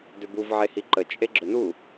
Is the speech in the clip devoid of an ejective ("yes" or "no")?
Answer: no